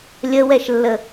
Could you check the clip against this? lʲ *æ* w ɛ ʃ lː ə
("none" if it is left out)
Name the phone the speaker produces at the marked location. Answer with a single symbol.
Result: ə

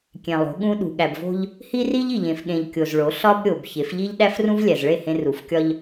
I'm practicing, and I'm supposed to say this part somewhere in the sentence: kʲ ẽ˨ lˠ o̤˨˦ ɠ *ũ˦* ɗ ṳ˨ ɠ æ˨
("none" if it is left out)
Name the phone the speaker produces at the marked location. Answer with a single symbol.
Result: ũ˦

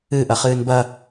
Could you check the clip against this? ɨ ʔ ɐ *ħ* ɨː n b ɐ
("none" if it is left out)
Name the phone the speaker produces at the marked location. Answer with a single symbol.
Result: χ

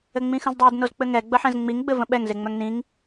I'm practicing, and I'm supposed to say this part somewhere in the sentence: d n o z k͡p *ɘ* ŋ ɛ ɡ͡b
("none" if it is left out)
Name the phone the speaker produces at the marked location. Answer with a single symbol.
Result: ɘ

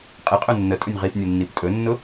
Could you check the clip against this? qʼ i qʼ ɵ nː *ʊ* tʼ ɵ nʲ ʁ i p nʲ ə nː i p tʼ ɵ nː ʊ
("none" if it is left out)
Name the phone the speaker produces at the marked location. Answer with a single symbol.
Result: ə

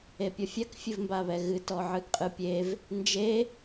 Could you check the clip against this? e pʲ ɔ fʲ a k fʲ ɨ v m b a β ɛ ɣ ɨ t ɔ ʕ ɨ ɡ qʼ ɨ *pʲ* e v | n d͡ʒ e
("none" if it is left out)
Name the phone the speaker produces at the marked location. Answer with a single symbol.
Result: pʲ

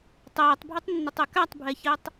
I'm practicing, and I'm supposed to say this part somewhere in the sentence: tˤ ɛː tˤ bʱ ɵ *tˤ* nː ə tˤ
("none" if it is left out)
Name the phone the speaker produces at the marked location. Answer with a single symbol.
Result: tˤ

